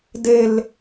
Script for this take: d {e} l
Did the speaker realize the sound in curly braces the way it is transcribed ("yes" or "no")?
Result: yes